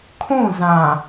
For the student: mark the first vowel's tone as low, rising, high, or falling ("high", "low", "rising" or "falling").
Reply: falling